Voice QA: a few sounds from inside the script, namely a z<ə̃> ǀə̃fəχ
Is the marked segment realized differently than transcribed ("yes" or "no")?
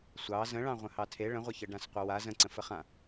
no